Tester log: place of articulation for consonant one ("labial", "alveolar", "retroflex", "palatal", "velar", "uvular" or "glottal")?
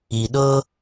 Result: alveolar